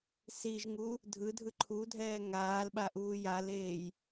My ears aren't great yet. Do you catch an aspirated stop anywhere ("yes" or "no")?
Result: yes